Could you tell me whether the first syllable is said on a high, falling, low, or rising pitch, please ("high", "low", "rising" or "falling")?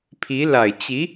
rising